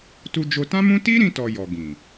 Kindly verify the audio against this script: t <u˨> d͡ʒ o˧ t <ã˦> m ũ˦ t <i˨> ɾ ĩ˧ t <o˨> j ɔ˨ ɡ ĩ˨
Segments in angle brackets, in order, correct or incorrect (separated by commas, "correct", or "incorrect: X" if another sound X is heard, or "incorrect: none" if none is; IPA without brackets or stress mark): incorrect: u˧, correct, incorrect: i˦, incorrect: ɔ˨